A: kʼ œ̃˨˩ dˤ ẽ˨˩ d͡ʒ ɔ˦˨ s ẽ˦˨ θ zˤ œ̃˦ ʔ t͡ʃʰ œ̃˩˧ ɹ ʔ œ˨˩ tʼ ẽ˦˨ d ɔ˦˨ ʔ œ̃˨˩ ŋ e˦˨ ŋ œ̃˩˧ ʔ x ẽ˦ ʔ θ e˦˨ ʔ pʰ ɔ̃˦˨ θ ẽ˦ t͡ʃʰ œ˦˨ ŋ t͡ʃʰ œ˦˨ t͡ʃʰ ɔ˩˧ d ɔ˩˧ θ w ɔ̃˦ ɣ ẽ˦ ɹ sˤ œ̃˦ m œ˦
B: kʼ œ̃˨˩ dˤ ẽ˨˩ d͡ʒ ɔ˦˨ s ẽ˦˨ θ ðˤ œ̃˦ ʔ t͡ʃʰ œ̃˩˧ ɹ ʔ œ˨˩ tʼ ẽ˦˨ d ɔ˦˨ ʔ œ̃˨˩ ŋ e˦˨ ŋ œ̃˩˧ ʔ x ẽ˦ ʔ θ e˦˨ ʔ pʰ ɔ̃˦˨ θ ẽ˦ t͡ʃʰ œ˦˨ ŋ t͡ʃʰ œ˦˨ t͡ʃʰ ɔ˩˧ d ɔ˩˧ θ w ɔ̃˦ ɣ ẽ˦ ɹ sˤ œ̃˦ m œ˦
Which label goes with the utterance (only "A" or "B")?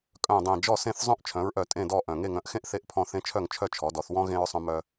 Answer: A